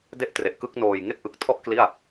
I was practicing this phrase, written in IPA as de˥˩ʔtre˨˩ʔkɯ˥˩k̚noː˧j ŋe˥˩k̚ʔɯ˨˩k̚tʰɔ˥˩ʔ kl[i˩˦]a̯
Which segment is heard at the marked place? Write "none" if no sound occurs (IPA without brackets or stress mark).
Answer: i˥˩